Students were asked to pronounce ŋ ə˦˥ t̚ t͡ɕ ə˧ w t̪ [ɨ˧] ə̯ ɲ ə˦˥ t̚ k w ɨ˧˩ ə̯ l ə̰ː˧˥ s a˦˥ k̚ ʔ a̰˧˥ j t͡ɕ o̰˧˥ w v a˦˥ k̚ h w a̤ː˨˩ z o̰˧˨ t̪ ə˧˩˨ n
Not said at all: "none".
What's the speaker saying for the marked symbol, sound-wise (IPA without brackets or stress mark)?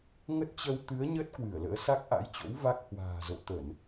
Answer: ɨ˨˦